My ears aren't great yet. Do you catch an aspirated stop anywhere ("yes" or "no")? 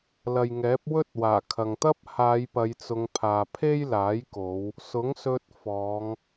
yes